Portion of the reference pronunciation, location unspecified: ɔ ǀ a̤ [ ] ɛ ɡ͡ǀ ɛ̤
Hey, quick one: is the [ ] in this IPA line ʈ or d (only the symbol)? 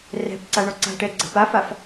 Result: ʈ